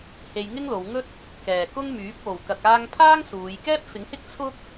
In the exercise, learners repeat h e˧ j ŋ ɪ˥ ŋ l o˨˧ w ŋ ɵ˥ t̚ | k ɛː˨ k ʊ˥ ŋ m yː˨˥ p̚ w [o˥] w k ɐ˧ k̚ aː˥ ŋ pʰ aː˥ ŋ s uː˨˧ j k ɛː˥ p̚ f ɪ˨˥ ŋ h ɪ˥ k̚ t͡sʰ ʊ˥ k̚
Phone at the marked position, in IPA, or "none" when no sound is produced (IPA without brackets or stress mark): o˨